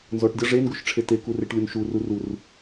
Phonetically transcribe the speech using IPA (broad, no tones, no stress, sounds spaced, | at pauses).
n z ɔ ʈ dʲ ɔ ʐ e n ɡ u ʃ ʈ͡ʂʰ e t e k u r e ʈ lʲ u n ʃ u r u r u r